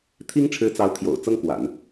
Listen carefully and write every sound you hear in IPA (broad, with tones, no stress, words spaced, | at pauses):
t̪ʰi˥ŋʈ͡ʂʰɻ̩˧˥t͡sɑ˧˥ʊ̯ t̪ʰjo̰˨˩ʊ̯ t͡sɤ˥ŋkwa̰˨˩˦n